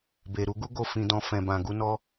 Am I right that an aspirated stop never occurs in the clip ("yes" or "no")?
yes